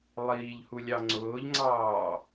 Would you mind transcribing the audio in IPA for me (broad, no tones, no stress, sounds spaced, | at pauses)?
lˠ iː ʎ h u lʲ ɑ ŋ͡ǀ ʊː ʎ ŋ͡ǀ ɑː